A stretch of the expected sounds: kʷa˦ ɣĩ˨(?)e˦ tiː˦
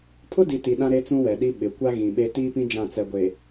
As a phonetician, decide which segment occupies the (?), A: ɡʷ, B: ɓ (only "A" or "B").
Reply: B